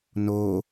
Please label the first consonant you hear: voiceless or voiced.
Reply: voiced